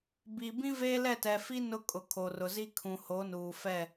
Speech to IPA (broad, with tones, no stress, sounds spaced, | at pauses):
b i˨ b ĩ˦ v eː˦ l ɛ˦˨ t ɛ˨ f i˦ n ʊ˦ kʼ ʊ˨ kʰ o˨ r ʊ˨ z i˦ kʰ ũ˨ h o˨˦ n uː˨ f ɛ˦˨